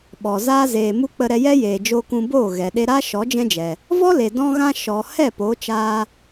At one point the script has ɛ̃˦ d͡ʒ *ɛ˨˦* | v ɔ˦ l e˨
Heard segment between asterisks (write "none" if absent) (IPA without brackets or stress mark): ɛ˨